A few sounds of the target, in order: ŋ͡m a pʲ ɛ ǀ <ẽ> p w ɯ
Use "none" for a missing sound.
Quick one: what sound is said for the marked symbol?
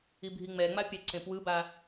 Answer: ẽ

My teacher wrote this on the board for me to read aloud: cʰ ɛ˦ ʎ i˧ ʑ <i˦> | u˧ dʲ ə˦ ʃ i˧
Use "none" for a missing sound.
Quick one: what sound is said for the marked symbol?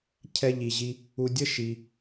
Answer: i˦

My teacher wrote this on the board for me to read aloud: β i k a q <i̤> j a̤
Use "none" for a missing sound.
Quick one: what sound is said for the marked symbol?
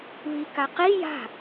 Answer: i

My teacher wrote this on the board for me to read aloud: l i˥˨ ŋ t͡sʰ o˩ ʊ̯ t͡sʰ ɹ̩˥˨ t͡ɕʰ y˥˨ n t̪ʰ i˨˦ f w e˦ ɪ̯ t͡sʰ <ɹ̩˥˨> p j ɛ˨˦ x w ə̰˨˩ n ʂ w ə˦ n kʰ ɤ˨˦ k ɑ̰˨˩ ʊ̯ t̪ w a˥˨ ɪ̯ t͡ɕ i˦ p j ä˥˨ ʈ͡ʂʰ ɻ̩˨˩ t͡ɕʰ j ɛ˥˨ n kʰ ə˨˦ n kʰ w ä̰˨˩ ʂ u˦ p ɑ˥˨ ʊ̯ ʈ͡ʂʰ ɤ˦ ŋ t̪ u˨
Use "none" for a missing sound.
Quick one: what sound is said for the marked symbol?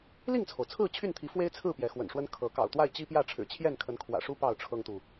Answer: ɹ̩˥˨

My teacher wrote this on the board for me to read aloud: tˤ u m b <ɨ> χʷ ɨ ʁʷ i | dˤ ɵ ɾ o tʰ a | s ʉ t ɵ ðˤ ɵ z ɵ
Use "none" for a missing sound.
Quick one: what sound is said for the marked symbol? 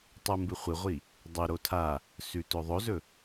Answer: ɨ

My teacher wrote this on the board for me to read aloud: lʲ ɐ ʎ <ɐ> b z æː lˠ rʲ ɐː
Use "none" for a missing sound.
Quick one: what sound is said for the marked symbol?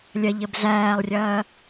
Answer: ə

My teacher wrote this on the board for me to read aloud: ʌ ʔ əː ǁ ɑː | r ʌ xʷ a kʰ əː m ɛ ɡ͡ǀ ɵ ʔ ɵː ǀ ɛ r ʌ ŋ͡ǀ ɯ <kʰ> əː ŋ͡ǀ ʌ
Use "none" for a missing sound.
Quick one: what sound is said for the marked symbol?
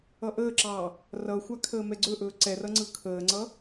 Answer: kʰ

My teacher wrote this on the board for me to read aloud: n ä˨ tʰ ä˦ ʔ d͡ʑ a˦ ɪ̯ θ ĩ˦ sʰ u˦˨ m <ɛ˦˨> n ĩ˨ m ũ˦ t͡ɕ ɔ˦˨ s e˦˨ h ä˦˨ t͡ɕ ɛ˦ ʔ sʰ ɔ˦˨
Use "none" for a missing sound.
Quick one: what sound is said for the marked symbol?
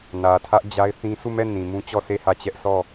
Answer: ɛ˦˨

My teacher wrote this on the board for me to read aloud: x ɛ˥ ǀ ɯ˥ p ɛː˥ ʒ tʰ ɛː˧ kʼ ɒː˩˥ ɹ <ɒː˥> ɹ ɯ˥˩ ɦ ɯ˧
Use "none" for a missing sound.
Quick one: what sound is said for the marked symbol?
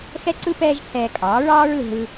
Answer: ɒː˥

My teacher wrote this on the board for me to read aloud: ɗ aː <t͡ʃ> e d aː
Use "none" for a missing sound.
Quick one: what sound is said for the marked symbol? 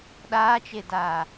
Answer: t͡ʃ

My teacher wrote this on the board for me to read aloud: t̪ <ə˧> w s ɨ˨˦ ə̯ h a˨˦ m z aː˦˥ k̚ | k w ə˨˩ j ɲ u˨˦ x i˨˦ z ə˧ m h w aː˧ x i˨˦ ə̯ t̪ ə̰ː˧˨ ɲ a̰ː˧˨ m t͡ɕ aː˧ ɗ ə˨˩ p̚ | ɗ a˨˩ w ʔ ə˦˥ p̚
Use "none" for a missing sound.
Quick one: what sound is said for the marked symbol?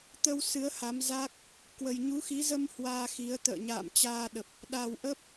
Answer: ə˧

